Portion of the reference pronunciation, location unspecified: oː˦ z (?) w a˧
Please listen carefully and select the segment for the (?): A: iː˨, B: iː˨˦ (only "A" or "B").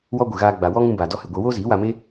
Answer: B